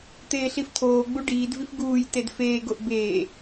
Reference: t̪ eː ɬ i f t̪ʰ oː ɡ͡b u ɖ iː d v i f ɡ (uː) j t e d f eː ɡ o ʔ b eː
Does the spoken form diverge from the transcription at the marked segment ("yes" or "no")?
no